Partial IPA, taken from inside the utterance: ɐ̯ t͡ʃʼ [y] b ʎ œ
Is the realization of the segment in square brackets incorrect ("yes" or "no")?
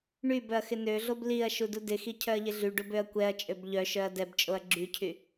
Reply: yes